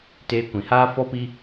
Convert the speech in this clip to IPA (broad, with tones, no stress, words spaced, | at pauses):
teː˧kʷĩ˨haː˦ fɔ˦pi˦